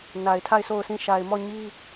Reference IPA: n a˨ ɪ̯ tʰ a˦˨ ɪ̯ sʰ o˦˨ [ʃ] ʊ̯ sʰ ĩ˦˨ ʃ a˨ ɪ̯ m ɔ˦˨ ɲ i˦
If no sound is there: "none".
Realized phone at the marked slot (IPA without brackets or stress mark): none